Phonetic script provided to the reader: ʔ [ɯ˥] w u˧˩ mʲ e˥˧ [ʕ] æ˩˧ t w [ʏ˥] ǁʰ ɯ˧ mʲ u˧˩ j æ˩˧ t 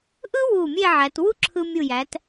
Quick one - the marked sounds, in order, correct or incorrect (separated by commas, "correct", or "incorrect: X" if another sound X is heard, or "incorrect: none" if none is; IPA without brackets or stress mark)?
correct, correct, incorrect: u˥